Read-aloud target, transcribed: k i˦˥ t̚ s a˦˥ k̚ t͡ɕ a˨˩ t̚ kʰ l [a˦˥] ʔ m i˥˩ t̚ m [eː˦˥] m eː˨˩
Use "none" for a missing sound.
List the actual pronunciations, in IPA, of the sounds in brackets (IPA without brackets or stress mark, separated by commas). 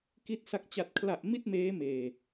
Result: a˨˩, eː˦˥